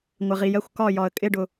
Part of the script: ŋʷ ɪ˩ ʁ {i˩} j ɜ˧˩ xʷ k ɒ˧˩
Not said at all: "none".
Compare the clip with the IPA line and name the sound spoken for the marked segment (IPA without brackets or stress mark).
i˩